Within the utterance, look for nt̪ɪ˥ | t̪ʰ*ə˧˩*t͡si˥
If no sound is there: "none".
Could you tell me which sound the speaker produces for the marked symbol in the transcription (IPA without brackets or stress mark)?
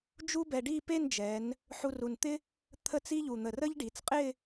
ə˥˧